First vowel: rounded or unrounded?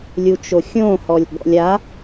rounded